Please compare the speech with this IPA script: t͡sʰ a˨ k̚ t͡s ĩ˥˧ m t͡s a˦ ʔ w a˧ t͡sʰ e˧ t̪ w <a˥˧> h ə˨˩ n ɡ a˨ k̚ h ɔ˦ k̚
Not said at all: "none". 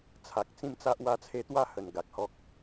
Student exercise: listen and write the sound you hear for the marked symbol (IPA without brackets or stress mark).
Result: a˥˧